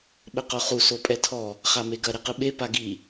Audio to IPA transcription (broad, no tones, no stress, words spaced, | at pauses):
ɓɘqoχu sopʼɛtʰɔ | χameɡɐ ɾeqɨɓe paɡi